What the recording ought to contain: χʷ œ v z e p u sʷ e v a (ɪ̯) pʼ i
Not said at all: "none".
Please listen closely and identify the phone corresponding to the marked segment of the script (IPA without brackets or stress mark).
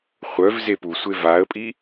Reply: ə̯